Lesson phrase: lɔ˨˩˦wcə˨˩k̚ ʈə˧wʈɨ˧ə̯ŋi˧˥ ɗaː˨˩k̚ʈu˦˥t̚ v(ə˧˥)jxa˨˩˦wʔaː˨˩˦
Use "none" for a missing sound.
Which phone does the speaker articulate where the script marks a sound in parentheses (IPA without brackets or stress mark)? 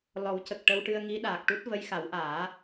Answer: ə˧˥